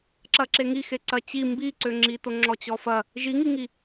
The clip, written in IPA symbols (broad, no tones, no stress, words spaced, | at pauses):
ǁɐǁeŋixe ǀɐt͡ɕi mbiǀøŋ͡ǁito ŋ͡ǁɔt͡ɕɔfɐ | ʒiŋiŋi